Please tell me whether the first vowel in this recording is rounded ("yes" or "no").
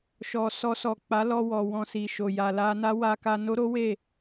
yes